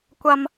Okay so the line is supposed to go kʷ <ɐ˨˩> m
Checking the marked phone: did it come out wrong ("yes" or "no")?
yes